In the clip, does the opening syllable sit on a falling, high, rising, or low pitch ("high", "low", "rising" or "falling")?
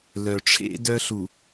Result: low